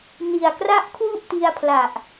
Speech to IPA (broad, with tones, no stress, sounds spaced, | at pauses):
n i˨˩ a̯ k r a˦˥ ʔ kʰ w u˥˩ ʔ t i˧ a̯ pʰ l a˨˩ ʔ